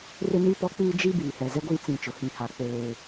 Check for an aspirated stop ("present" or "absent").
absent